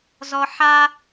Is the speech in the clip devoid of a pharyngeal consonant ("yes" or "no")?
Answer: no